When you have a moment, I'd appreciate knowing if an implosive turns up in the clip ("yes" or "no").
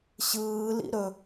no